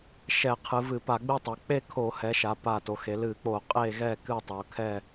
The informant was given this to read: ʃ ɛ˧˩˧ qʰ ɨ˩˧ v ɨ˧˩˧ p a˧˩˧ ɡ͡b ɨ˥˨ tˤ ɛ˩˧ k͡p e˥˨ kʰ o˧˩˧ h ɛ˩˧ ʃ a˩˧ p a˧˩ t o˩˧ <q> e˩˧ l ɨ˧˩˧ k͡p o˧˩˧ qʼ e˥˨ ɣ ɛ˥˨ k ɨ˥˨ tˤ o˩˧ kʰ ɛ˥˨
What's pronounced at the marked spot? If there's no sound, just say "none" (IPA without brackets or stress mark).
x